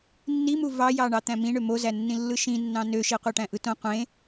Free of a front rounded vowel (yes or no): no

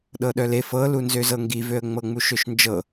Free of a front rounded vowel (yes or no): no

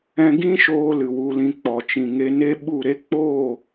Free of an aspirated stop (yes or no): yes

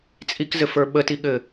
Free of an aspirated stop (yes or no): yes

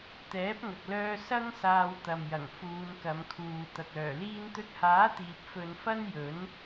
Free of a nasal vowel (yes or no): yes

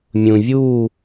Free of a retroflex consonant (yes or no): yes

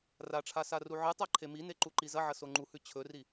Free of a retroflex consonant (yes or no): no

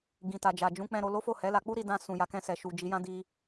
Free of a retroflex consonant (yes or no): yes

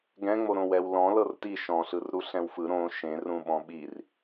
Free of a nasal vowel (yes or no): no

